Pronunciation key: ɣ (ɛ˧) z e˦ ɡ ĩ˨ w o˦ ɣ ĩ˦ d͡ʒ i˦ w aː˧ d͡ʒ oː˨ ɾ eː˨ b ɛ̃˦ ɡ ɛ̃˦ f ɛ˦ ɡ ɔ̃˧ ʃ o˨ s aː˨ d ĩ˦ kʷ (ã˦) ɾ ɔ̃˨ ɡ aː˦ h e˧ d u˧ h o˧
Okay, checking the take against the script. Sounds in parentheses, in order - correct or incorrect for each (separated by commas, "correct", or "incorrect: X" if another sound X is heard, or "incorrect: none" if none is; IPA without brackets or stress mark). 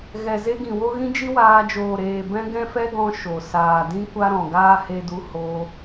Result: incorrect: ɛ˨, incorrect: a˦